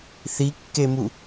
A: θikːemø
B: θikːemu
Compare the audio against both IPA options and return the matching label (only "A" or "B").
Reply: B